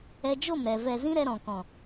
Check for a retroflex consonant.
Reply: absent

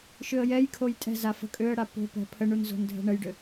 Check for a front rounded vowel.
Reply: present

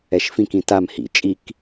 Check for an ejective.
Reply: present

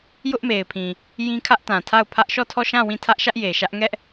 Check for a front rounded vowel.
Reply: absent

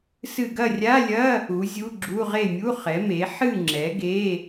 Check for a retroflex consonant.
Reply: absent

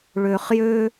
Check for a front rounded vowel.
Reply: present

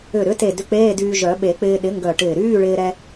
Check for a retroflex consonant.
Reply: present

